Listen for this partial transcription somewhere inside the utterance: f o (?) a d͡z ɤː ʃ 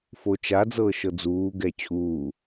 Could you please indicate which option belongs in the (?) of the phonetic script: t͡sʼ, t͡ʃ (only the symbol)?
t͡ʃ